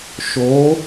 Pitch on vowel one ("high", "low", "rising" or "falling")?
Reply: rising